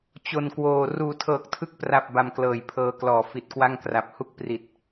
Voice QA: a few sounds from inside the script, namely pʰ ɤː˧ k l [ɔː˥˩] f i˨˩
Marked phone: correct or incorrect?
incorrect